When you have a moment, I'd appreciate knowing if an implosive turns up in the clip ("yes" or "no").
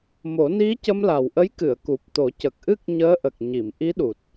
yes